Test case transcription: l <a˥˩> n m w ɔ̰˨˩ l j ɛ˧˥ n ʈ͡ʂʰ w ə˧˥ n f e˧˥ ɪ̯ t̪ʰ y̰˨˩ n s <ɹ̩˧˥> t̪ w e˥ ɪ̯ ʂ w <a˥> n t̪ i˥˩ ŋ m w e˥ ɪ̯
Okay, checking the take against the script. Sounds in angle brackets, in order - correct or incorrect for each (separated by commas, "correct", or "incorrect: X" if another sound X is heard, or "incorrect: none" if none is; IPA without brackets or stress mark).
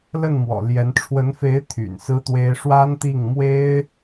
incorrect: ə˥˩, incorrect: ɹ̩˥, correct